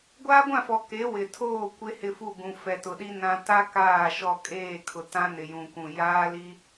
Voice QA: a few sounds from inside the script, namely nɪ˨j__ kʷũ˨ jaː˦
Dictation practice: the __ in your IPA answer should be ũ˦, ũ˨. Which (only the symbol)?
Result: ũ˨